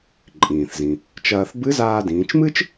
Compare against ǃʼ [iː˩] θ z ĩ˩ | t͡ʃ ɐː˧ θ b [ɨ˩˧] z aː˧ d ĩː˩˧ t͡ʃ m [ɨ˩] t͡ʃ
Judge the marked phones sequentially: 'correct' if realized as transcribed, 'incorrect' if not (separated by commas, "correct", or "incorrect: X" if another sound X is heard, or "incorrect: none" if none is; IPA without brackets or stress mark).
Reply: incorrect: ĩː˩, incorrect: ɨ˧˥, incorrect: ɨ˥